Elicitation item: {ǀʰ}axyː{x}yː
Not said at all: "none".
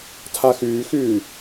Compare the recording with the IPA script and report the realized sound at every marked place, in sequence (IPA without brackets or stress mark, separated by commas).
tʰ, x